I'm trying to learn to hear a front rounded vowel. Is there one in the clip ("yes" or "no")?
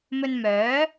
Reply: yes